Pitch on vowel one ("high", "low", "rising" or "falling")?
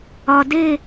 low